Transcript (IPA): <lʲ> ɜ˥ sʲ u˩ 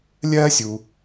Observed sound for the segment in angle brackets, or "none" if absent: lʲ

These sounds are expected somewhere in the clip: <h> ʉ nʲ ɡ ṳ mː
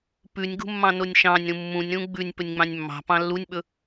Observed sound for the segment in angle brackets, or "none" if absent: p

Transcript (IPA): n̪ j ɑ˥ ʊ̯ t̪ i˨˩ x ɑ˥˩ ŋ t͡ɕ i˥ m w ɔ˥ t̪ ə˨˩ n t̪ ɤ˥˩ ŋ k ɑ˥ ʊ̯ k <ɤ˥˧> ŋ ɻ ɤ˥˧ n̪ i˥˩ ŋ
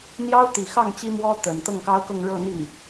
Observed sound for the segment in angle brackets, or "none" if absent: ɤ˥˧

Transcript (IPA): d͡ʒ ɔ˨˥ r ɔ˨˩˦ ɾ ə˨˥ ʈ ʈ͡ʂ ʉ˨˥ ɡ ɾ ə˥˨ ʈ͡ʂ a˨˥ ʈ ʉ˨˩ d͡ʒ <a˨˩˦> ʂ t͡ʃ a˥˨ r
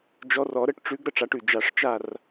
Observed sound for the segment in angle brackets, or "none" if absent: a˨˩˦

